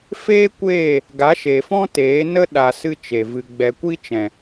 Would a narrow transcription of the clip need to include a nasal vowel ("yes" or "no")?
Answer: yes